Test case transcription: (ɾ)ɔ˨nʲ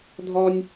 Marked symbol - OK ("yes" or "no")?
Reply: no